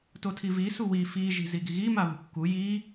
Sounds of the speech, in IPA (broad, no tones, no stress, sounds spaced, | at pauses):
t o tʰ i v i s u w i f i ʒ i̤ z i ɡ i ɣ i m a β ṳ kː u j i